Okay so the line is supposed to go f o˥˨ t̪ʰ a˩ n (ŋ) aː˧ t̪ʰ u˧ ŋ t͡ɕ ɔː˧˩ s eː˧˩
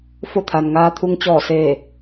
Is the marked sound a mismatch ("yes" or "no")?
no